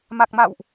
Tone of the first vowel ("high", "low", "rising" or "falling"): low